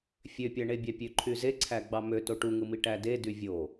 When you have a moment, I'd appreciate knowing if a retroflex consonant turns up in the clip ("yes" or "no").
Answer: yes